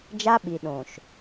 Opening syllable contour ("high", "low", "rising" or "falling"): high